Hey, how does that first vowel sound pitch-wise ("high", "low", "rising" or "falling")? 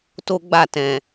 high